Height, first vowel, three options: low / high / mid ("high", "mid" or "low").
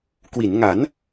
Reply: high